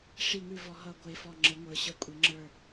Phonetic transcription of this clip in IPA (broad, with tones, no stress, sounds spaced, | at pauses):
ʂ i˥˧ ŋ ʉ˥˧ v ɔ˧˥ ɦ ʌ˥˧ ɡʷ e˥˧ f ɔ˥˧ ŋ͡ǁ ə˧˥ ŋʷ ə˞˧˥ ɕ ʌ˥˧ kʷʼ e˧˥ ŋ͡ǁ ə˞˥˧